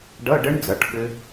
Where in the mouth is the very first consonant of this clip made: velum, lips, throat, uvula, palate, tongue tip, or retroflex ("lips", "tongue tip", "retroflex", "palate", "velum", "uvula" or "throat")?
retroflex